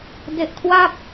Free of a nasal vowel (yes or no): yes